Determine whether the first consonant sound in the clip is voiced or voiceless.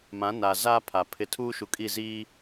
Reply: voiced